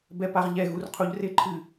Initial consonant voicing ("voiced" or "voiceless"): voiced